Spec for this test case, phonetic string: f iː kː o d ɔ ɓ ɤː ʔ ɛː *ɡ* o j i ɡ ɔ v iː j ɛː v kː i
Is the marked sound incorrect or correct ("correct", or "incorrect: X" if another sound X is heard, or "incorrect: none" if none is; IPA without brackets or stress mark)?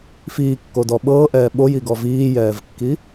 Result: incorrect: ɓ